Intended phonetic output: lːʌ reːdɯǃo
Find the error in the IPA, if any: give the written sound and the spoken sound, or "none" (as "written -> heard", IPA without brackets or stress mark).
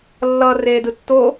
ǃ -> tː